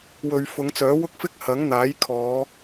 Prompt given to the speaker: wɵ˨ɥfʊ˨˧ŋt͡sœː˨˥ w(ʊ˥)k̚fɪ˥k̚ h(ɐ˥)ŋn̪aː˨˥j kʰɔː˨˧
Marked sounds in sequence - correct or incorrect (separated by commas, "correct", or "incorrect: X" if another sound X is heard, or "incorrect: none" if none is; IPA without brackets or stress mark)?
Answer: correct, incorrect: ɐ˨˥